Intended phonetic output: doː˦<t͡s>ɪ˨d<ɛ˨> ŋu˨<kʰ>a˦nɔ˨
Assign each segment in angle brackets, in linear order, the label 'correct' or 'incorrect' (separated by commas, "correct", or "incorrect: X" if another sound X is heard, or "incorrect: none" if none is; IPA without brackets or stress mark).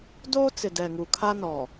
correct, correct, correct